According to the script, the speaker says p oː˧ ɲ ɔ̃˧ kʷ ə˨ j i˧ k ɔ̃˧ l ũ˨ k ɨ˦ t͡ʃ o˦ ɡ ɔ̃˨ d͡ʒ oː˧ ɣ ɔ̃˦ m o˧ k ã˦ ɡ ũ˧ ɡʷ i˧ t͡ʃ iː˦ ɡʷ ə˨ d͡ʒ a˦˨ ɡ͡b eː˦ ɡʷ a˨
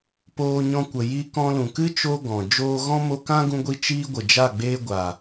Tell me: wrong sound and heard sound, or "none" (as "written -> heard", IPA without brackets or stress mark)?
none